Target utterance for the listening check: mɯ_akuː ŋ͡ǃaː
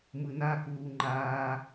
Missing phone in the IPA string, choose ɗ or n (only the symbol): n